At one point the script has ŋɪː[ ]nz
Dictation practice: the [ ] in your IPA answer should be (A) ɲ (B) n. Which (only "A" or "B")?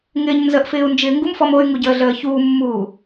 A